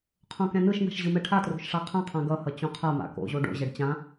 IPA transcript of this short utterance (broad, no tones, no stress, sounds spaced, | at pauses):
qʰ õ k ɛ̃ n ɯ ʃ n a̤ ʃ ʑ ɯ m ɛ ʈʰ a t r o̤ ʃ ʂ a qʰ ã qʰ ã ɡ ʌ h ʌ t͡ɕ õ qʰ a m a̰ k o̰ ʑ o ɖ o̰ ʑ ɛ ɖ t͡ɕ ã